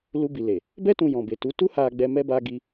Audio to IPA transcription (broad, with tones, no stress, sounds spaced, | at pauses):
l u˧ b i˨ l e˨ | b ɛ˧ t ũ˨ j ɔ̃˨ b e˨ t u˨˦ t u˦ h a˧ ɡ͡b ɛ˧ m ɛ˧ b a˧ ɡ i˧